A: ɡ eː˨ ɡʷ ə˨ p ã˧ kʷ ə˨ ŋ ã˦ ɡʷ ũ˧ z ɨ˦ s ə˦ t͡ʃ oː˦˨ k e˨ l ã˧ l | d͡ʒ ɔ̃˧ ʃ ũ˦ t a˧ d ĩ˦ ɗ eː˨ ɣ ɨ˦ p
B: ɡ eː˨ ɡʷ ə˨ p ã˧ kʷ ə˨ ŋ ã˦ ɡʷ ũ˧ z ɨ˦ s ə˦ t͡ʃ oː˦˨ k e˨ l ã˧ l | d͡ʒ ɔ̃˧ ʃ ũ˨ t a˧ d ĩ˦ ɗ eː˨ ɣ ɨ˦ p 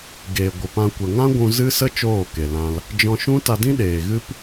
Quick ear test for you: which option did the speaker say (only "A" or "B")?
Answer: A